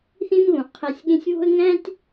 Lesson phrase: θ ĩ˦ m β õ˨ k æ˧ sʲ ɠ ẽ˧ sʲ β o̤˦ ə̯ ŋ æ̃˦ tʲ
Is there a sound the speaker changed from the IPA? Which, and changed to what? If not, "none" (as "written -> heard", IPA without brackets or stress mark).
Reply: k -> qʰ